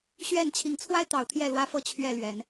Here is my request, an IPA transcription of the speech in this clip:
ɕ ɥ ɛ˥˨ n t͡ɕʰ i˨˦ ŋ t͡sʰ w a˦ ɪ̯ t̪ ɑ˨˦ ʊ̯ t̪ʰ j ɛ˥˨ l w ä˦ f ɤ˥˨ t͡ɕʰ ɥ ɛ˥˨ l ɥ ɛ˨˦ n

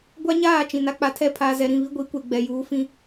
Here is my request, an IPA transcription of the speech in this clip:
ɡʷ a˦ ɲ aː˦˨ t͡ʃ ĩ˨ n a˦ k͡p a˨ tʰ ɛ˦˨ pʰ aː˨ z ɛ˨ ɾ ĩ˦˨ β i˦ ɡʷ i˨˦ kʷ e˨ ɡ͡b ɛ˨ j uː˨˦ f ĩ˦

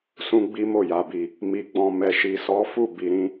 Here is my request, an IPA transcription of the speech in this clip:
s ũ˦ ɡ͡b i˦ m o˦˨ j a˨ b i˨ | m i˨ ɡ͡b ɔ̃˨ m ɛ˨ ʃ i˨ s ɔ˨˦ f u˦˨ b i˨ ɾ ĩ˧

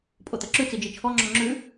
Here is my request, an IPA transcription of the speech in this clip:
pʼ o t̪ ʌ ǁ ʉ t͡s i d͡ʒ i t͡ʃʰ ɔ ŋ͡ǁ ɔ ŋ͡ǁ ʉ

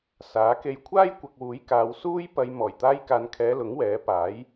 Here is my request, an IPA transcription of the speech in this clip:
s aː˨˥ k e˧ j kʷʰ aː˥ j kʷ ɐ˨ k̚ w uː˨˥ j k aː˨˧ w s uː˥ j p ɐ˧ j m ɔː˨˩ j t̪ aː˧ j k aː˨ n kʰ ɛː˨˧ l ʊ˨˥ ŋ w ɛː˨˥ p aː˨˥ j

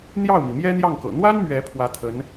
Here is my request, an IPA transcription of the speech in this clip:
n̪ j ɑ˥˩ ʊ̯ m i˩ m j ɛ˥ n̪ j ɑ˥˩ ŋ k ɤ̰˨˩ n̪ w a˥ n m ɥ ɛ˧˥ pʰ w ä˧˥ t̪ʰ ə˧˥ n

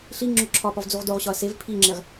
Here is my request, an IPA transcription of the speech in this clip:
ɬ i ŋ͡ǁ o ǁʰ ɒ p ɒ v d͡z u ʁ d o ʁ ɕ ɒ ɐ̯ s e v pʰ i ŋ͡ǁ e ʁ

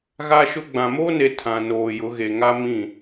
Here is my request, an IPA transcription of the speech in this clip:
ɣ a˦ ʃ ʊ˦ ɡ͡b ã˨ m oː˦ n e˨ tʰ ã˨ n oː˨ j ʊ˨˦ ɣ e˨ ŋ a˦ m ĩ˦˨

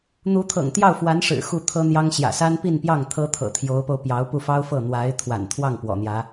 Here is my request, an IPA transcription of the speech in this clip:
n̪ u˧˥ t̪ʰ ɤ̰˨˩ ŋ t̪ j ɑ˥˩ ʊ̯ f w a˧˥ n ʂ ɻ̩˨˩ x u˥˩ t̪ʰ ɤ˥ n̪ j ɑ˥ ŋ ɕ j ä̰˨˩ s a˥ n p i˥˧ n p j ɑ˥˩ ŋ t̪ʰ ɤ˥ t̪ʰ ɤ̰˨˩ t̪ʰ j o˧˥ ʊ̯ p o˧ ʊ̯ p j ɑ˧˥ ʊ̯ p u˥˩ f ɑ˥ ʊ̯ f ɤ˥˩ n̪ w a˧˥ ɪ̯ t̪ʰ w a̰˨˩ n t̪ʰ w ɑ˥˩ ŋ p w ɔ̰˨˩ n̪ j ä˧˥

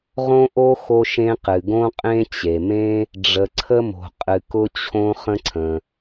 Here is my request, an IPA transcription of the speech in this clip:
ʁ õ˥ ʔ o˥ x o˥ ʃ ẽ˥ q ɨ˩ ɡ õ˥ qʼ ẽ˥ t͡ɕ e˩ m ẽ˥ | ɖ͡ʐ ə˩ ǀʰ ə˥ m o̤˩ qʼ ɨ˩ k ʊ˥ t͡ɕʰ õ˥ χ ə̃˥ ǀʰ ə̃˩

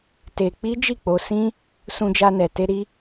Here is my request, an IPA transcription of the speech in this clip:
t e˧ k͡p i˦ d͡ʒ i˦˨ k͡p o˧ s ĩ˦ | s ũ˧ d͡ʒ a˧ n ɛ˨ t e˧ ɾ i˦

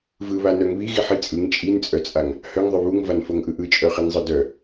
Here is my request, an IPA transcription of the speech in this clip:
v ɯ β a n œ ŋ β i ɣ i ħ i t͡sʼ ɯ ŋ t͡ʃʼ i n t͡sʼ œ t͡sʼ a ŋ | h œ ŋ ðˤ œ β u ŋ v a n f o ŋ ʔ ɯ ʔ ɯ t͡ʃʼ œ χ i n zˤ ɯ d œ

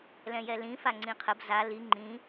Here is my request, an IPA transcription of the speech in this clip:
l ɛ̃ j ɛ l ĩ f a ŋ͡ǀ ĩ qʰ ə b z a l i ŋ͡ǃ ĩ

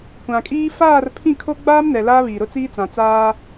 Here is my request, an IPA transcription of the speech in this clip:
kʷ ã˨ kʼ iː˦ f aː˦˨ r pʰ ĩ˦˨ kʰ o˦ ɡ͡b aː˦ m n ɛ˨ l aː˦ β iː˨ ɾ ʊ˦ t͡s iː˦ t͡s ã˨ t͡s aː˦

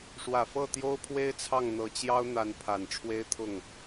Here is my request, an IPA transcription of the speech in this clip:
ʂ w ä˨˩ f ɤ˥˩ t̪ j o˥ ʊ̯ pʰ w e˥ ɪ̯ t͡sʰ ɑ˥˩ ŋ n̪ ɤ˧˥ t͡ɕ j ɑ˥ ʊ̯ n̪ a˧˥ n pʰ a˨˩ n ʈ͡ʂʰ w e˥ ɪ̯ t̪ʰ ʊ˥˩ ŋ

